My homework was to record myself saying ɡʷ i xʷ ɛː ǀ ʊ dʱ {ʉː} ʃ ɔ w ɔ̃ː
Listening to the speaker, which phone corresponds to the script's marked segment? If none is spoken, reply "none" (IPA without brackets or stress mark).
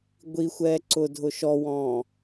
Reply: ʊː